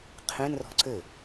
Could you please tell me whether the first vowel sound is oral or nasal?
nasal